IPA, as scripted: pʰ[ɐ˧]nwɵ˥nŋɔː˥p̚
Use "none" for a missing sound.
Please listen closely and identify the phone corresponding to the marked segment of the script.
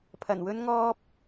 ɐ˨˩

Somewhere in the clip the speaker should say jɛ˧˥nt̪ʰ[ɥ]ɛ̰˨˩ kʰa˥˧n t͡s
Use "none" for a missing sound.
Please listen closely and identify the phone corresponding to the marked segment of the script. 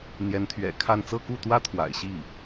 ɥ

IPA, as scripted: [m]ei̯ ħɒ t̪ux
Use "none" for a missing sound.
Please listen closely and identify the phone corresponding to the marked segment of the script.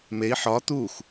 m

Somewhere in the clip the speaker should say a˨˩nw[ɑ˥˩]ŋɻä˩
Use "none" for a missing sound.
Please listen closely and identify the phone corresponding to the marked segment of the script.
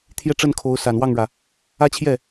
ɑ˥˩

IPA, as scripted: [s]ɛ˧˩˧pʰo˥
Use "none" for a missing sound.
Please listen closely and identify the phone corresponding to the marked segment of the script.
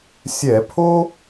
sʲ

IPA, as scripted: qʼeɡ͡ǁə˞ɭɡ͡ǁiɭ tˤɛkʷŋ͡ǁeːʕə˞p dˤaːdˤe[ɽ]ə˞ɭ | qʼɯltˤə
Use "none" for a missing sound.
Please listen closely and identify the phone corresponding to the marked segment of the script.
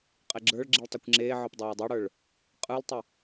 ɽ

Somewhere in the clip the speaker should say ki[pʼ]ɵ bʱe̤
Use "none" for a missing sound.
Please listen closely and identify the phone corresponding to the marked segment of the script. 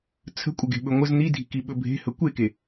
ɓ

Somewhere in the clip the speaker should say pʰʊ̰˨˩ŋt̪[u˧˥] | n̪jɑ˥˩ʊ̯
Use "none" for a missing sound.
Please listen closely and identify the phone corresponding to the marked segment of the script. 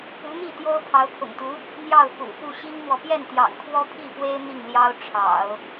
u˧˥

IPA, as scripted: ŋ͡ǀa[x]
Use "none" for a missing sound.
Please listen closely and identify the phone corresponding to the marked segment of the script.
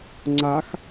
x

